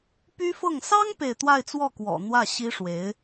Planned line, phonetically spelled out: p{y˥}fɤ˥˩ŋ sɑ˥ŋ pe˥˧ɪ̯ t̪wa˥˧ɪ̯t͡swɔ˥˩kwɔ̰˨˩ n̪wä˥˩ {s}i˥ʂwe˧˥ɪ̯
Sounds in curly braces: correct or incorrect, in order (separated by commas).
correct, incorrect